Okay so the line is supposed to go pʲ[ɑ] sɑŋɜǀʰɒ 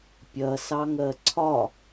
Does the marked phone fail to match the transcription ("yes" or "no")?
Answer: yes